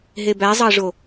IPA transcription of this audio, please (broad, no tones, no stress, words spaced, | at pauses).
ɦebæzˤɑʐo